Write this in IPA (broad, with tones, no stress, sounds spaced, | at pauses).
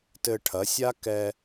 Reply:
t ɘ˧ ʈʰ ɐ˩˥ sʲ a˥ k ɛ˧